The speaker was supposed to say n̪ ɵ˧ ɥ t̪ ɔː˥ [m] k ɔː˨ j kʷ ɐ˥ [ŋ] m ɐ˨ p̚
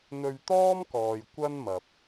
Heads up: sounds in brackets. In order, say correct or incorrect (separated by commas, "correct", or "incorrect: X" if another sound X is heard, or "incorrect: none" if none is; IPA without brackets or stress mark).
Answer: correct, incorrect: n